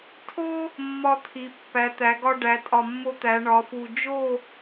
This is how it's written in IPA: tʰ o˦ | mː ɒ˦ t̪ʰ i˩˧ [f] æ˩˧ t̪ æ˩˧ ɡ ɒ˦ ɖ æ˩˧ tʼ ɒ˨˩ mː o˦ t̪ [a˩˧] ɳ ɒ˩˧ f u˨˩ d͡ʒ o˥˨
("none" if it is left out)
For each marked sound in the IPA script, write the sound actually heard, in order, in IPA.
pː, æ˩˧

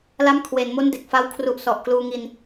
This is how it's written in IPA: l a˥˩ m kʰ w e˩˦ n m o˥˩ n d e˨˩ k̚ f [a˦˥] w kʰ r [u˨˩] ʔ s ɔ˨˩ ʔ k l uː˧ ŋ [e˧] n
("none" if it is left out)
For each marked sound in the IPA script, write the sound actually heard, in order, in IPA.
a˦˥, u˨˩, i˧

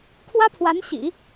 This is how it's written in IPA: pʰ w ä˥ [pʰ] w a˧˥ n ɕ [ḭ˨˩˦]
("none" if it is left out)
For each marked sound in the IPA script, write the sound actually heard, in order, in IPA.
pʰ, ḭ˨˩˦

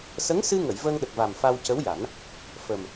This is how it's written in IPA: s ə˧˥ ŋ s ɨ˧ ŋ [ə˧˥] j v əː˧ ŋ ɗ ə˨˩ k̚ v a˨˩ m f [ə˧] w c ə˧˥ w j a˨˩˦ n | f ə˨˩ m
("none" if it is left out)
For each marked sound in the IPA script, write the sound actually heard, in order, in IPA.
ə˨˩˨, a˧

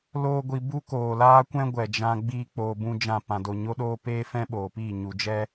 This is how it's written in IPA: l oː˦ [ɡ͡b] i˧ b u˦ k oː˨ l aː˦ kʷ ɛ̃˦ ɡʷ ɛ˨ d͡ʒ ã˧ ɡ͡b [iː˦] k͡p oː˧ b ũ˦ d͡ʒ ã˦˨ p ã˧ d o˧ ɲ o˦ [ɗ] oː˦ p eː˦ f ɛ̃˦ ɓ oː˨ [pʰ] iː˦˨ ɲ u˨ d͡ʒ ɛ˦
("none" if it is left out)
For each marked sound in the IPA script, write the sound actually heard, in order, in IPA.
ɡʷ, iː˦, ɗ, p

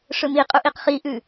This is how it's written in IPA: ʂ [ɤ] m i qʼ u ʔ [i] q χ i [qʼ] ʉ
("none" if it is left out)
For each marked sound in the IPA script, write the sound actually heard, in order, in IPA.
ɵ, i, ʔ

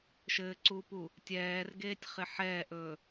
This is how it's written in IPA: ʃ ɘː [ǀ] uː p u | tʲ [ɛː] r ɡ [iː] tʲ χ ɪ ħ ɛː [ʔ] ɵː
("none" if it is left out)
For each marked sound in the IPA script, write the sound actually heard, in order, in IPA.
ǀ, ɛː, eː, ʔ

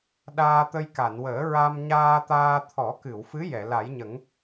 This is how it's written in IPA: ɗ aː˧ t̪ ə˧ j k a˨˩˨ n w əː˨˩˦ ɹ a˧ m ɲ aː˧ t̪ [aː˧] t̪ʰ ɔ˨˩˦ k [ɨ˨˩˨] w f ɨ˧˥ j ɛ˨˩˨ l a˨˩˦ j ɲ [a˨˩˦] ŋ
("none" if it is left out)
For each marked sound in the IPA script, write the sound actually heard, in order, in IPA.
aː˧, ɨ˨˩˨, ə˨˩˦

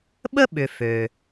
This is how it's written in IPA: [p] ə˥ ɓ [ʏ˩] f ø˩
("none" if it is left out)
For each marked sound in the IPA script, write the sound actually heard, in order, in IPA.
ɓ, ʏ˩

